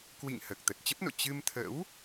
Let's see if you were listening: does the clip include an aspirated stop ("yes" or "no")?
yes